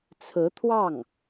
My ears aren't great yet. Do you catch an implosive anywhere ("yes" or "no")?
no